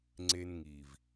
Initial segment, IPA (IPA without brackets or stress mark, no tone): ŋ͡ǀ